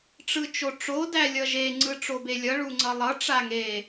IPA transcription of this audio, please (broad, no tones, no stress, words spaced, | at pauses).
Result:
ʈ͡ʂɯt͡ʃoʈ͡ʂo dælʲʌʒe ŋ͡ǀɯʈ͡ʂobelʲʌ ɭuŋ͡ǀʌlˠʌ ʈ͡ʂaŋe